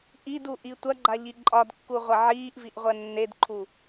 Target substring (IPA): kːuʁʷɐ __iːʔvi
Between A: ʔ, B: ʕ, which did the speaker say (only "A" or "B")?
B